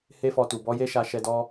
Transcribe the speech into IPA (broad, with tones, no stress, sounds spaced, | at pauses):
h e˦ f ɔ˧ t u˨ b ɔ˨˦ j e˦ ʃ a˧ ʃ ɛ˧ d ɔ˧